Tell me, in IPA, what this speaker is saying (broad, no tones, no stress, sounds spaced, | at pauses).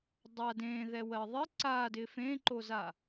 dˤ a d ẽ ð ɛ w ɜ ðˤ ɪ ǀ a d ɪ f ẽ ǃ o z a